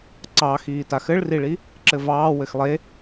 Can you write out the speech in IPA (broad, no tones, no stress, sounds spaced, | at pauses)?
ǀ ɑ x iː t a x ɘ ɭ r i ɭ i | ǁ ɘ v ɑː w ɘ x lˠ e